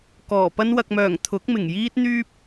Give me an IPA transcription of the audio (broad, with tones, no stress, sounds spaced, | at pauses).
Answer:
k ɔː˨˩ p ɐ˥ n w ɐ˨ k̚ m œː˨˩ ŋ t̪ʰ ʊ˨˥ k̚ m ɪ˨˩ ŋ j iː˥ t̚ n̪ yː˥ p̚